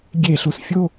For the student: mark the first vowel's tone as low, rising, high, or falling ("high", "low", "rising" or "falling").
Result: falling